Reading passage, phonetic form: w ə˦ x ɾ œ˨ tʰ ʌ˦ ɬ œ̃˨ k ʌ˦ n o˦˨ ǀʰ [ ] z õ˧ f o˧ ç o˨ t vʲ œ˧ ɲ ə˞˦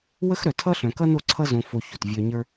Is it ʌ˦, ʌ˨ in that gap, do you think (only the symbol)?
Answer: ʌ˦